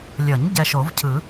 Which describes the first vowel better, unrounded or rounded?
unrounded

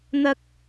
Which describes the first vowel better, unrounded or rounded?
unrounded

